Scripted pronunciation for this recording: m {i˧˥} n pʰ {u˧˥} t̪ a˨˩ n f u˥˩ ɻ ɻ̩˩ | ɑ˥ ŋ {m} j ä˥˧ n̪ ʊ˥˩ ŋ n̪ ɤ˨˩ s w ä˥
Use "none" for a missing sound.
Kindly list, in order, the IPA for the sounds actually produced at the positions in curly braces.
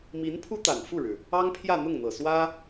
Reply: i˧˥, u˥, pʰ

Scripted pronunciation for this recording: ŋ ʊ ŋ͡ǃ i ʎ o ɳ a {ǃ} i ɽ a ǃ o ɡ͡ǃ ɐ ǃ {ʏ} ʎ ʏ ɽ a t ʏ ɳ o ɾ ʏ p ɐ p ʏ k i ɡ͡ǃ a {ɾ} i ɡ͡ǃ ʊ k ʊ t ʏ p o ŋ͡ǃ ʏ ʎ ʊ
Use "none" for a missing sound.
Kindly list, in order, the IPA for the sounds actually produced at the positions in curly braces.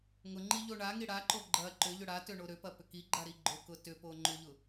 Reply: ŋ, ʏ, ɾ

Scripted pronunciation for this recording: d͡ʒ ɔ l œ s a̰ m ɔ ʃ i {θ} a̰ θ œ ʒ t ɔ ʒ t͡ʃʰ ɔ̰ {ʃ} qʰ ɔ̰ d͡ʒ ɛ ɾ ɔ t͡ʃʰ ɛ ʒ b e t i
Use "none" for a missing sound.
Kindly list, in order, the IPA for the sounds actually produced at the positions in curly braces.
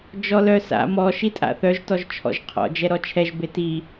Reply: tʼ, ʒ

